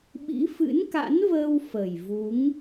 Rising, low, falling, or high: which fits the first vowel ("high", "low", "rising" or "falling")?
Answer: rising